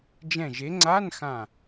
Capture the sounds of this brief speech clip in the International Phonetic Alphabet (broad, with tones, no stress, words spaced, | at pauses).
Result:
d͡ʒɛ̃˧˩ʒe˨˦ŋ͡ǀa˧˥˧nxã˧˩